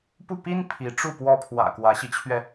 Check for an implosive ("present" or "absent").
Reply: absent